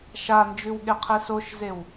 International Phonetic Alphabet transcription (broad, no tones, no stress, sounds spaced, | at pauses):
ʃ a n d͡ʒ ʉ w ɠ e qʰ e s o ʃ z e w